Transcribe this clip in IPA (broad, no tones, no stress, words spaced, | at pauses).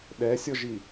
ɗɛsʲɔʒi